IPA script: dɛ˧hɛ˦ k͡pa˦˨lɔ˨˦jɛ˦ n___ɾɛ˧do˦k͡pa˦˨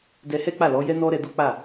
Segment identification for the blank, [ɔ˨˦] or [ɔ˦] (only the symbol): ɔ˦